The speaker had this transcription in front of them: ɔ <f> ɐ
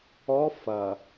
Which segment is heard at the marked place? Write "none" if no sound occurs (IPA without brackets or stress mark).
f